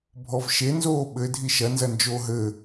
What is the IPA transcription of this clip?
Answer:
bʱ ɔ v ʃ e n z oː ɓ ɘ dʱ i ʃ ɐ n z ɐ n d͡ʒ oː ɦ ɘ

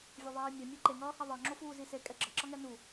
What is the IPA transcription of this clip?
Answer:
vʲ ʌ ðˤ eː mʲ a mʲ ɛ ǃ e ŋ ʌː h a ðˤ ʌ ŋ͡ǁ o f uː z i s e kʼ ɛ ɡ͡ǁ ʌ ǁ ʌ ŋ ɛ n u

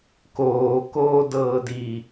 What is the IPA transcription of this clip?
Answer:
k oː k oː d ɤː d i

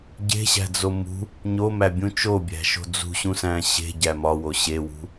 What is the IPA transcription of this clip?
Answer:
ɟ e̤ ɕ æ̤ d͡z o m ṳ | ɲ o m æ bʲ ũ t͡ʃ o bʲ æ̤ ʃ o̤ d͡z ṳ ɕ ũ s æ̃ ɕ e̤ ɟ æ m ɒ w o ɕ e w ṳ

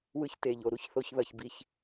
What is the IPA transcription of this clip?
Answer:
w ɯ˨ ç t e˩ ʎ o˩ ɾ u˦ ç θ o˨ ç ð ʌ˩ ç b i˨ ç

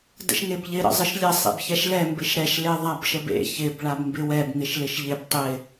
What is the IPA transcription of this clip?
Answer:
d ə̰ ʃ ŋ e b ʎ ɪ ɾ ə̰ zˤ ə ʃ lʲ ə sˤ ḛ b ç ɛ ʃ l ɛ m b ɪ ʃ ɾ ɛ ʃ l e ðˤ a b ʃ ə b ḛ ç ɪ b ɭ a b m b ɪ w ɛ b ŋ ɪ ʃ l ɪ ʃ ʎ ɪ b tˤ ɪ

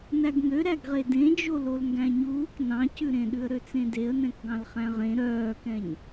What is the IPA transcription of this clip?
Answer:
n æ ɡ ŋ ø ɾ æ ɡ ʁ e d ẽ d͡ʒ o l o l ŋ ɡ æ̃ ɲ uː k n ɑ̃ c ʉ ɾ ẽ ɗ ʉ ə̯ ɾ ø t͡s ẽ d e ə̯ n ɛ̃ k ɡ ɑ̃ l χ æ̃ ʁ ẽ ɾ œː k ɛ̃ ɲ

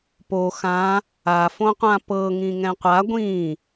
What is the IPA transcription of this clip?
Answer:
p o x ã | a f õ qʷ ã p ɤ ŋ ĩ ŋ ɛ̃ qʷ a ɡʷ ĩ

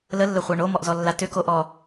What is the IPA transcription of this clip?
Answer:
l ə lː ə χʷ a ɳ o m ɔ ʔ z ɔ lː a t ʏ k o ʔ ɔ

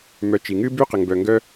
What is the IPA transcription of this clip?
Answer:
m œ˨ t͡ʃ i˩ ŋ ɨ˦ b y˦ q ə˩ ŋ b œ˩ ŋ ɡ œ˦

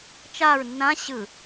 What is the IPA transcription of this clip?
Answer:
t͡ʃ a ɹ nː ã ɕ ɯ

